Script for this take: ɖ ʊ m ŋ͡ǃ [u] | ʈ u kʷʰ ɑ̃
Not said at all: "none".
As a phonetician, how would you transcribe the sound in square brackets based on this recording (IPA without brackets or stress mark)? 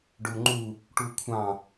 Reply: u